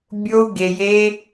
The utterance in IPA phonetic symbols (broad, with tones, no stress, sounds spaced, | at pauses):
bʲ o˦ u̯ ɡ e˧ j e˦